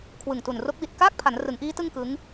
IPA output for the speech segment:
kʰ w ɯ˨˩ ŋ t u˨˩ n r o˦˥ k̚ w i˨˩ t̚ k aː˥˩ k̚ pʰ a˩˦ n r ɯ˩˦ ŋ ʔ iː˦˥ t ɯ˥˩ ŋ k ɯ˦˥ ŋ

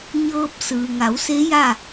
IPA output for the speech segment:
ɲ ɤː˧ p̚ s ɯː˩ ŋ a˩˧ w s e˧˥ j a˥˨

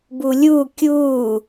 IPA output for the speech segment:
b u lʲ u kʲ u

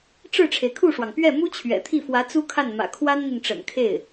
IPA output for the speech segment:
ʈ͡ʂ ɻ̩˥˩ ʈ͡ʂʰ e˩ ɪ̯ kʰ u˥˩ ʂ w ɑ˩ ŋ p ɥ ɛ˥˩ m u˥ t͡ɕʰ ɥ ɛ̰˨˩ t̪ʰ i˥˩ f w ä˧˥ t͡s u˥ kʰ a˥˩ n m ä̰˨˩ kʰ w a˥ n n̪ i˨ n ʈ͡ʂ ə̰˨˩ n kʰ e˥˩ ɪ̯

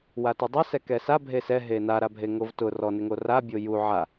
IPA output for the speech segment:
w a t ʊ dˤ a s ɛ k ɛ s a bʱ e s ɛ ɦ e n a ɾ a bʱ e ŋ o v t ʊ r ɔ n ɪ ŋ o r a bʲ o j u ʕ a

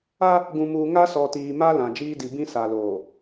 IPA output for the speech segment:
a˦ | ɡ ũ˨ m uː˨ ŋ a˦ s ɔ˨ t iː˨ m a˦ l ã˨ d͡ʒ iː˦ d i˨ b ĩ˦ s a˨ l oː˨

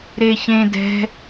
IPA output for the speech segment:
ɾ e ç ẽ d ɛ̤

